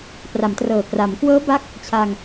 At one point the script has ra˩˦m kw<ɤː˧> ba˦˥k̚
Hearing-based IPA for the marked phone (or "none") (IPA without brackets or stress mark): ɤː˦˥